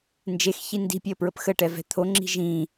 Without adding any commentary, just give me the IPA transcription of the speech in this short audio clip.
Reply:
nd͡ʒexçi ndi̤pʲøə̯pɹəp xəʈɛvɛ̤ t̪ʰoŋ͡ǁi̤ ʒĩ

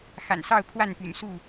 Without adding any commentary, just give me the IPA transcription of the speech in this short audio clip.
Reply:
xa̰˨˩nsɑ˥˨ʊ̯ kʰwa˥˨npy̰˨˩nsu˥˨

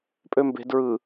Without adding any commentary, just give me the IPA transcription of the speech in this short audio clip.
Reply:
pʼømbe̤ dɹɯ

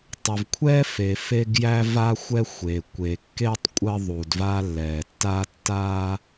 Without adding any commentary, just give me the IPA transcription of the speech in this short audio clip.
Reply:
tˤə˨vkʷʰɛ˦ fe˨fe˦ɡjæ˦ va˦xʷɛ˦ xʷe˨ kʷe˨kːe˦tˤ kʷʼə˦ðˤu˨dva˦ lːɛ˨tːa˦ tːa˦

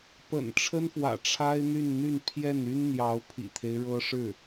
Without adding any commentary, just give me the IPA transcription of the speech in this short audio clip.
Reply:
pə̰˨˩n ʈ͡ʂʰə˥nfwä̰˨˩ ʈ͡ʂʰa˥ɪ̯n̪y˥˧nn̪y˥˧n pʰjɛ˥˩ny˥nn̪jɑ˧˥ʊ̯ pʰḭ˨˩t̪ʰe˦ɪ̯ɻɤ˥ ʂɻ̩˥˩

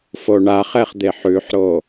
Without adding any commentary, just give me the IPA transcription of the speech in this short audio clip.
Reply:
foɳaχɛχ d̪eħʉħɾo

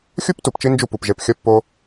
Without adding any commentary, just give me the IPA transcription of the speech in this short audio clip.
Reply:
xʲu˦p tu˨pt͡ʃi˦ nd͡ʒu˦˨pu˨p ʒe˧pxʲʌ˦pːo˦

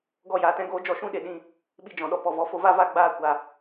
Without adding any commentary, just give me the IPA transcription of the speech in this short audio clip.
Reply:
ɡɔ˦˨jaː˨tɛ̃˦ɡoː˦ d͡ʒɔ˧ʃũ˦ ɗe˨ɗĩ˧ | ɓi˧d͡ʒɔ̃˨ɗɔ˧pɔ˨ vɔ˧fo˧va˦va˦˨ ɡ͡baː˦˨ kʷa˨

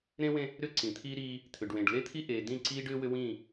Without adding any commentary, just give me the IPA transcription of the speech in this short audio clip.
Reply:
ɾẽ˦wẽ˦ | ɾʏ˦ǀĩ˨t̪ʰiː˦ɾiː˦ | t̪ʰʏ˨ɖwẽ˨ɖ le˦t̪ʰi˦ʔeː˨ dĩ˦˨ǀiː˦ɖʏː˦ wʏ˦wĩː˦˨

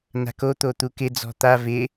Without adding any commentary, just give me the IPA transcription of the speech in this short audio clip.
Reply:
na̤ko t̪ot̪ukɪ d͡zɔ̤t̪a vɪ

